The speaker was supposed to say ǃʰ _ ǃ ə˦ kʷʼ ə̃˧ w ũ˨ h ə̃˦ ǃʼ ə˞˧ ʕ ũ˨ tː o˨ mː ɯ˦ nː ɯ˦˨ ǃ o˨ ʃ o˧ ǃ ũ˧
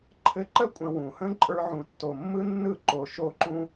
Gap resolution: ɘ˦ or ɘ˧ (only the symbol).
ɘ˧